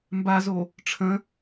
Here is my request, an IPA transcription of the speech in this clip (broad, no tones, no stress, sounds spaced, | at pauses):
m b a z o | ʈ͡ʂʰ ə̃